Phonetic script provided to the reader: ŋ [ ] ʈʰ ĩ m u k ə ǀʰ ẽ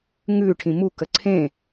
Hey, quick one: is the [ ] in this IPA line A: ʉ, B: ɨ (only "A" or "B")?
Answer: A